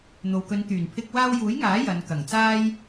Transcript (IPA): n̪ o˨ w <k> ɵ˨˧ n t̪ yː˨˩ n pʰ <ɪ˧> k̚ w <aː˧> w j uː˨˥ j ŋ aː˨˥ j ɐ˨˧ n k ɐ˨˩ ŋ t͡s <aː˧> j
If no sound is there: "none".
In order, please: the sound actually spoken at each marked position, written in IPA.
k, ɪ˧, aː˧, aː˥

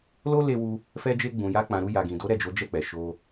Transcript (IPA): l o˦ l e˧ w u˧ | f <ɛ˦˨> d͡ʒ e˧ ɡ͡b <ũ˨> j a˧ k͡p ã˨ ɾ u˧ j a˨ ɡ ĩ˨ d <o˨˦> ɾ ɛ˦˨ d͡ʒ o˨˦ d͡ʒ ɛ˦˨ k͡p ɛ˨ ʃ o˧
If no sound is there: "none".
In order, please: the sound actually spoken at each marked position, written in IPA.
ɛ˧, ũ˨, o˨˦

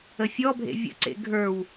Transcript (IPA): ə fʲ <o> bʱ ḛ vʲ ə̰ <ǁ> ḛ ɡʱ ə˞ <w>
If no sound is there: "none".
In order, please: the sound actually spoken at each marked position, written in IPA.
ɔ, ǀ, w

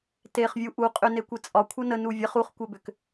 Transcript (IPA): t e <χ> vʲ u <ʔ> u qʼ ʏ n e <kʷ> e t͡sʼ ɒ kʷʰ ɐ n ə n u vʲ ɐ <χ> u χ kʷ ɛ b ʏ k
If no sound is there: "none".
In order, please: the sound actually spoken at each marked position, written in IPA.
χ, ʔ, kʷ, χ

